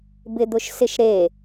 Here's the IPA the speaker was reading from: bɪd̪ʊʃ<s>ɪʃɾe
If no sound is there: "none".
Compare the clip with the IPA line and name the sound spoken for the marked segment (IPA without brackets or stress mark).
s